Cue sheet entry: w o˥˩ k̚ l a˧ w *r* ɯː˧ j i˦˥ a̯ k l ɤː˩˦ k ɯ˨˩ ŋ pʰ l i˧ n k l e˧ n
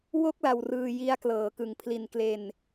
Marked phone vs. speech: correct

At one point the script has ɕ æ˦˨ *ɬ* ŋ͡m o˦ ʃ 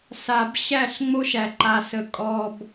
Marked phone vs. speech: correct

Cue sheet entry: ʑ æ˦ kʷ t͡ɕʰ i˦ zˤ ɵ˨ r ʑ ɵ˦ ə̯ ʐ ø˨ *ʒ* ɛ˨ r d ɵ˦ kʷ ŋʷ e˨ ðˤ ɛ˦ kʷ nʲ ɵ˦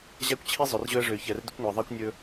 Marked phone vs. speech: incorrect: ç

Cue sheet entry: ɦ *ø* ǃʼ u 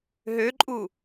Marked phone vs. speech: correct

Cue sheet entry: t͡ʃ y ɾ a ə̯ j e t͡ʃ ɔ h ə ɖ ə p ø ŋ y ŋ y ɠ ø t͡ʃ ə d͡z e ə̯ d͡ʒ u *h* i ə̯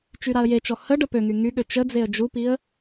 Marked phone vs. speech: incorrect: p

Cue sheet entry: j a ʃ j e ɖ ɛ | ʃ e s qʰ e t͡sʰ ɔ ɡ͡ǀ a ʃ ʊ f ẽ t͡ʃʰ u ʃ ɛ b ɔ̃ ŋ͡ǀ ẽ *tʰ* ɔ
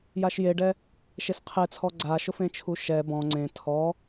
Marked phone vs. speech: correct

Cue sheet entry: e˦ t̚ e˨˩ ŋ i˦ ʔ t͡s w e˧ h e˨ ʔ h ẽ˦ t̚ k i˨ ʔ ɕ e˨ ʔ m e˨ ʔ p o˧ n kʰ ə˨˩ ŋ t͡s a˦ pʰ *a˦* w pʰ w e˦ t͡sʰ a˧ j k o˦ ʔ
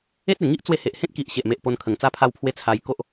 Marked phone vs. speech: correct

